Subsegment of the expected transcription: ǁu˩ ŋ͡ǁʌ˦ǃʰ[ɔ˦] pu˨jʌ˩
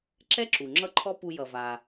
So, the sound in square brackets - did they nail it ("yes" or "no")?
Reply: yes